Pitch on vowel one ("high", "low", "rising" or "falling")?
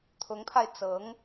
rising